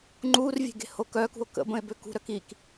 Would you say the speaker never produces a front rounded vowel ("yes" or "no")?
no